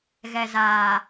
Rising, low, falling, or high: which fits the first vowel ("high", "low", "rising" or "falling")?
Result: low